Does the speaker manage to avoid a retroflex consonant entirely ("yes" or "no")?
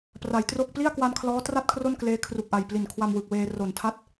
yes